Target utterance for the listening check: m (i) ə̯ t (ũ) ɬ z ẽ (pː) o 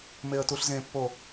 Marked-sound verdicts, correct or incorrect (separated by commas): incorrect, incorrect, correct